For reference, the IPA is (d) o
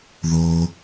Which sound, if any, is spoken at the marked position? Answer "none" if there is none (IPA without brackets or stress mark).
ð